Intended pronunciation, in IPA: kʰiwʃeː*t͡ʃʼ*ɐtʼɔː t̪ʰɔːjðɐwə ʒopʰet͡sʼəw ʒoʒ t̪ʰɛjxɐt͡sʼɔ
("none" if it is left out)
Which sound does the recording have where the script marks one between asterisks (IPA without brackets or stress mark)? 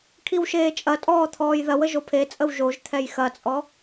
t͡ʃʼ